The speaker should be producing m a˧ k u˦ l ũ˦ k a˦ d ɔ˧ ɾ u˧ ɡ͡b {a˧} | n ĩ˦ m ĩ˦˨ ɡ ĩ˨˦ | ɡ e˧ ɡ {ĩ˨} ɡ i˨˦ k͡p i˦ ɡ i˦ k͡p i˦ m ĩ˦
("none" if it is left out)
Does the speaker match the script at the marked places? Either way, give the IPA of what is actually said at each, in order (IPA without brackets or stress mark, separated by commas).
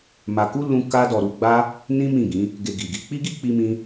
a˦, i˨